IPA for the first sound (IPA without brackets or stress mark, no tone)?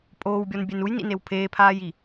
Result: pʼ